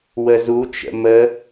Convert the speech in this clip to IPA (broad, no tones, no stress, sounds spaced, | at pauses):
w ə z u t͡ʃ ə̰ m ə